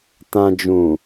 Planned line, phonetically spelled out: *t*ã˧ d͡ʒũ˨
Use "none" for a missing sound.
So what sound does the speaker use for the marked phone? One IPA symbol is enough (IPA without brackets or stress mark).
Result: t